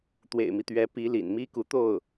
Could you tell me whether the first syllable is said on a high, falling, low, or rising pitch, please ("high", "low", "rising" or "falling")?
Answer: low